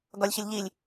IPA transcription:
ɡɒlʲçɪlʲʎilʲ

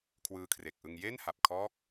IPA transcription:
kʰwɯː˧kʰre˨˩k̚ ʔɯ˧ŋ je˥˩nha˨˩p̚kʰɔː˦˥k̚

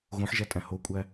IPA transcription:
ɣõħʒætʼæ̃ hokʷʼæ

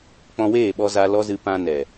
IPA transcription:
k͡pɔ̃˧weː˦˨ɓɔ˧ za˧ lɔ˦zɨ˧ pã˧ nɛ˨

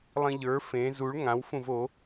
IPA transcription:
lˠĩʎə˞ fẽ zuɭ ŋãw fũvo

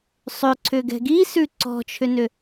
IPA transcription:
sˤʏ ǀʰʏɡɛ̤ɡi sʉǀɔ̤t͡ʃʰʏnʏ

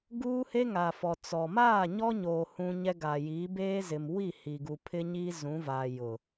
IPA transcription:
ɡuː˦he˦ ŋa˨fɔ˨ t͡sɔ˨ maː˦˨ɲɔ˦ɲoː˨ hũ˦ɲɛ˦ ɡa˨jiː˨˦beː˦ zɪ˨m wi˦˨ hi˨ɡu˨pʰɪ˦ɲiː˦ zũ˨˦va˨ jʊ˨

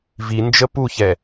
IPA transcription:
vind͡ʒə puçɛ

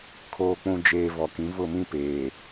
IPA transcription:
kʰoː˨k͡pũ˨d͡ʒeː˨ vɔ˨kĩ˨˦ vʊ˦˨mĩ˦ peː˨

